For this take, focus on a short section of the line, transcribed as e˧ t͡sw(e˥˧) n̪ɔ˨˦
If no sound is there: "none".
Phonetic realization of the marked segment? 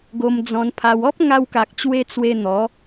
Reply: e˧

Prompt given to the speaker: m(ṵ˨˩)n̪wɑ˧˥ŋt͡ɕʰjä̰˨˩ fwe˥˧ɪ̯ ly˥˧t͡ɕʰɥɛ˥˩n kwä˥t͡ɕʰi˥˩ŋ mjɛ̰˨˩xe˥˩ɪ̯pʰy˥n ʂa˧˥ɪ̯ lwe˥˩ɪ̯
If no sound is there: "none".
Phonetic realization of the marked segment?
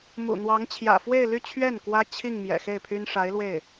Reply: ṵ˨˩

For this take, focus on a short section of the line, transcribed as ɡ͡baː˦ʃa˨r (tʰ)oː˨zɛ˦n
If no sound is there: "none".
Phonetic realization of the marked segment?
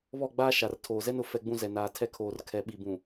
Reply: tʰ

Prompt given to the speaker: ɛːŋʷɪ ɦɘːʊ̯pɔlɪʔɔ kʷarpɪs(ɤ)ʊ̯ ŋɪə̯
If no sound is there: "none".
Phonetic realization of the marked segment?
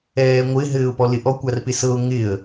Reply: ɤ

